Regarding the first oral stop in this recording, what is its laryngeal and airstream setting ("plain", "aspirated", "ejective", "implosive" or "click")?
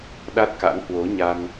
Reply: implosive